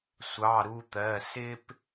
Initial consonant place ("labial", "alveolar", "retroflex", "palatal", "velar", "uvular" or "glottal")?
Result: alveolar